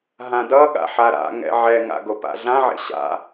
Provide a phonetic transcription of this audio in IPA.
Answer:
ɦãdʌɠa̰ ħaɾa̰ŋɛ̰ ʕɛŋa̰ ɡopa̰ɮãʕḛ ɕa̰

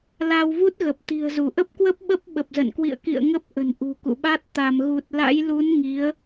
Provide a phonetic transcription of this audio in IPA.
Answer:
la˧wvu˦˥t̚ɣə˨˩p̚ t̪i̤˨˩ə̯zu˧˩ʔə˦˥p̚kwə˦˥p̚ ɓə˦˥p̚ɓə˨˩p̚zə̰˧˨n kwḭ˧˨ə̯kḭ˧˨ə̯ ŋə˦˥p̚ ʔə̤˨˩n ʔṳ˨˩kṵ˧˨ɓa˦˥t̚ t̪a˧˩mɣu˨˩t̚ la̰˧˥jlu˨˦n ŋi˨˦ə̯

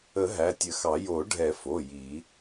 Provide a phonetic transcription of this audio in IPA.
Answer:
ə˨˩˦ ɦæ˩˧˩tʲə˨˩˦xɑ˨˩˦ jo˨˩˦ɖʱɛ˨˩˦fo˩˧˩ ji˨˩˦

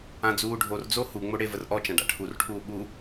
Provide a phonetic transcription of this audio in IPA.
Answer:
ãd͡zuːɖʱord͡zo huŋ͡mo ɽevərʔɔt͡ʃã ɖa̰ʈʰurʈʰuː ɓu

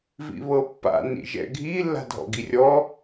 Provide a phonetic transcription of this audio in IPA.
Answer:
vḭβɤpːa̰ nḭʒɛ̰ɡʱi lːa̤dʱɔ̰ɡirʲɔ

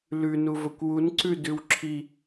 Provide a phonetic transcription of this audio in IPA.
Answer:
lʉ nuvɵkʷwun ǀʉdʉwǁʰi

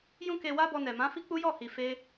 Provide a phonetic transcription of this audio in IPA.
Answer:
jũ˦ke˧wa˦ bɔ˧nɛ˨mã˨˦ fi˦k͡pu˦jɔ˦˨hi˨ fe˧

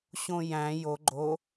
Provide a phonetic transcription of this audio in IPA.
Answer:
ɕõjæ̃ jo ɡ͡ǃo

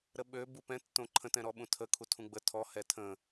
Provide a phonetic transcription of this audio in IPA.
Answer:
ɾəɓø bupɛ̃ tːõǃʰə̃ tɛ̃ɾɔɓũtʰə kʰutʰũɡ͡bə tʰɔ hɛtʰə̃

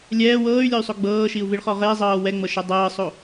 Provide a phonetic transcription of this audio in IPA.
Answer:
lʲɛː wɤːy̯lʲɔy̯sˤo ɡ͡bɤːʃiu̯viɭχɔ ʁezˤɤː wɛŋ͡mɤʃɛ dˤɤːsˤo

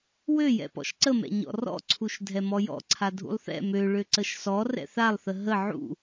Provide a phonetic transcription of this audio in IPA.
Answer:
wøjɛ̰ pɔ̰ʃǀəmɛ̰ ɲɔ̰rɔ̰ǀʰuʃ dʱɛmɔjɔ̰ǀʰa dʱṵlˠθɛ̰ mø ɭøǀəʃsɔ rɛ̰θalˠθə ɦə ʕṵ

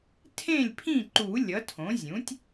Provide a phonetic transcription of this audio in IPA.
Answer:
tʰẽ˥˨lʲpʰĩ˥˨ǃu˨˩˦ lʲʌ˩˥tʰõ˩˥ zʲũ˩˥tʲ

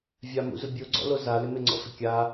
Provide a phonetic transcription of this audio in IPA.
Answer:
vʲamṵzʊ bʲoɡ͡ǀɔ̰lo zalɪ mɪŋ͡ǀɔ̰fɪ kʲa

